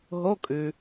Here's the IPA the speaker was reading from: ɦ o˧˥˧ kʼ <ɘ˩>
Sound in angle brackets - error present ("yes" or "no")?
yes